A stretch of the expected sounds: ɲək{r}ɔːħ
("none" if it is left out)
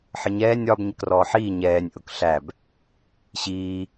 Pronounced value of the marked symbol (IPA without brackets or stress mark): r